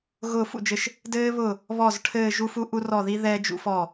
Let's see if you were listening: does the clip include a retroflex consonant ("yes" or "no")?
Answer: yes